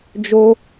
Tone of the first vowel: high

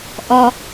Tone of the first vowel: low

